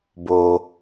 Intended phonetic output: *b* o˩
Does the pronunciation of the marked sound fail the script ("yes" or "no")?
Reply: no